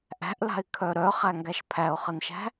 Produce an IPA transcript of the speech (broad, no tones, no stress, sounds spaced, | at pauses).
ʔ æ̤ ʔ l a̤ ɪ̯ kʰ œ ɾ œ χ æ ŋ ɡ æ ʃ pʰ æ ʊ̯ χ ə n ʃ æ̤